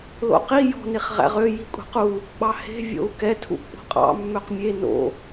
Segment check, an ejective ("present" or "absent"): present